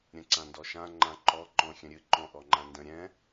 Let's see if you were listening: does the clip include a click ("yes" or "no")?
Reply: yes